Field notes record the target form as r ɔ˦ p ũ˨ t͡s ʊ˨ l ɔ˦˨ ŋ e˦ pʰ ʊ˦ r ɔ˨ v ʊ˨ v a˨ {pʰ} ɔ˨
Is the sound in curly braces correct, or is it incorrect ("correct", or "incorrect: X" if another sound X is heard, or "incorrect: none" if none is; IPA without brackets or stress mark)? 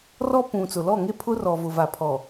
correct